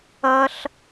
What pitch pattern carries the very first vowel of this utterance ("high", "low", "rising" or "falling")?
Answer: low